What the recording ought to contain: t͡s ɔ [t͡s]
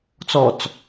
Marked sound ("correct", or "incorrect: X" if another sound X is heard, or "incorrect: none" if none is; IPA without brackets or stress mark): correct